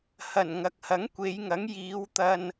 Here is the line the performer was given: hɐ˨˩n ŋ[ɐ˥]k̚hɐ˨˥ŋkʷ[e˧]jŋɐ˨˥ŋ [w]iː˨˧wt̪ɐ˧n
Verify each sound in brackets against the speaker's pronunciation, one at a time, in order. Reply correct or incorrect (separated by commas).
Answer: incorrect, incorrect, incorrect